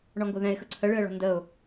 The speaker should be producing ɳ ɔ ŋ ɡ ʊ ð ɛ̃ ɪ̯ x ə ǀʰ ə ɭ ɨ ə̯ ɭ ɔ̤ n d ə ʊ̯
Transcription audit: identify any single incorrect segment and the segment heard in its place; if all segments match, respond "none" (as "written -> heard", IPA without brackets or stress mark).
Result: none